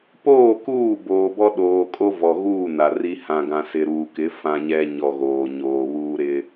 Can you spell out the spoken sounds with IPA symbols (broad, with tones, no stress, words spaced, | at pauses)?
poː˦˨kuː˦˨ boː˨bɔ˦ ɗoː˨kʼo˦vɔ˨ɣuː˦˨ na˨ri˦ hã˨ɡã˨ sɪ˨ɾuː˨kɪ˨˦ fã˦ɲɛ˦ ɲɔ˨ɣoː˨ ɲoː˨βuː˦ ɾɪ˦